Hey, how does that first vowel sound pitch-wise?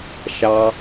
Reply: low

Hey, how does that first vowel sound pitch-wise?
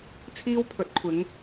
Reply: high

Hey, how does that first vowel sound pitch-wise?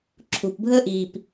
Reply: low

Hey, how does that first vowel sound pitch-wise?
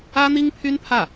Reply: high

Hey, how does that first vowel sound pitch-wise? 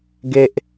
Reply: high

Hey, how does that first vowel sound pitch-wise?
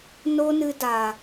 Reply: high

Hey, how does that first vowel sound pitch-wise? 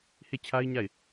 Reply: falling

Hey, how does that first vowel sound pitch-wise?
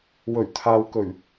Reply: low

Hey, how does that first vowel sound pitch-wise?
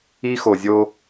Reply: high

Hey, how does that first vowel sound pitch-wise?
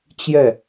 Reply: falling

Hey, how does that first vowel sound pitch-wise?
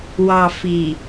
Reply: low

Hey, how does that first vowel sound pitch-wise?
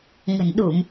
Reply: low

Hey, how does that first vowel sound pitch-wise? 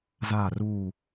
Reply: falling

